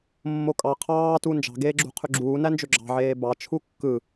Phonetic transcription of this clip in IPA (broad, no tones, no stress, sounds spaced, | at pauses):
mː o kʼ ɑ qʰ ɑː t u n d͡ʒ ɑ̤ ɡ eː ɡ͡ǁ ṳ qʰ y ɡ͡ǁ uː n æ n d͡ʒ ø ɡ͡ǁ ɑ̤ ʕ eː b ɑ t͡ʃʰ u kː ɯ